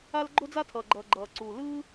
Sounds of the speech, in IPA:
a˧ l ɡ͡ǃ o˥ d͡z a˥ tʰ ʌː˩ ɡ͡ǃ ʌː˩ ɡ͡ǃ ʌː˩ ǀ u˩ l ɯː˥

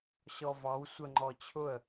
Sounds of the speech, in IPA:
ɕ ɔ v ɑ w sʷ ə ŋ͡ǃ ɔ t͡ɕʰ ʊ ə̯

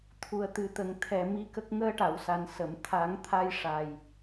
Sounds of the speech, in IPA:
t̪ʰ u˨˩ ə̯ t̪ ɨ˨˩ t̪ ə˨˩ ŋ t̪ʰ ɛ˨˩ m i˧ k ə˦˥ k̚ ŋ əː˧ ʈ a˨˩˨ w s a˨˩ n s ə˨˩˨ m t̪ʰ a˨˩˦ ŋ t̪ʰ a˧ j ʂ a˨˩ j

